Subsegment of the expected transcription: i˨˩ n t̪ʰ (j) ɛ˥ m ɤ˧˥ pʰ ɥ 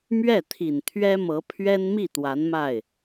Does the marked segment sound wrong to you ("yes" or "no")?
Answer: yes